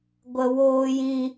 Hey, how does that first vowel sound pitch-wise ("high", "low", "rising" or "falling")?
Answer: low